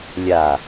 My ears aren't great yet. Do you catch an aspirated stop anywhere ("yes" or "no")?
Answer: no